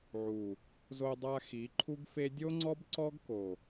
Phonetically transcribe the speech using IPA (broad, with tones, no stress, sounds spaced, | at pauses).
ʕ u˨ | z o˧ dˤ a˧ x i˨˦ ǃʰ u˦ ɡ f e˦ dʲ o˦ ŋ͡ǀ ɔ˦ b ǀ ɔ˦ ɡ k o˨